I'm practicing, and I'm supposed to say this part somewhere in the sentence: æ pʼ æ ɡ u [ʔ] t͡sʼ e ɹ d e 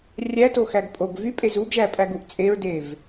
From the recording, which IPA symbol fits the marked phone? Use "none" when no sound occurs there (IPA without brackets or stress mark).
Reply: ʔ